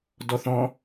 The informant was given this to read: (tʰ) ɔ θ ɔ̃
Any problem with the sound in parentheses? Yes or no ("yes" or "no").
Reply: yes